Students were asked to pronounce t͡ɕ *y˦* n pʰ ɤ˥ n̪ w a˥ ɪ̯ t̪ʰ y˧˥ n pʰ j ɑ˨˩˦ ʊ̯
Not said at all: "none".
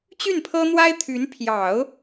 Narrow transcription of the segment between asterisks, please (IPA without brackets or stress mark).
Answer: y˥˩